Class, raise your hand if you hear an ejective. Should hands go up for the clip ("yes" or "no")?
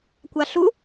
no